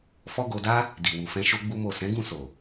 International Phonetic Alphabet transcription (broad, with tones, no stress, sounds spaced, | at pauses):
f ɔ˦ ɡ o˧ d a˦ | d i˨ w u˨ f ɛ̃˧ ʃ o˦ ɡ͡b u˦ m o˦˨ s ɛ̃˨˦ ɡ ũ˦˨ s o˨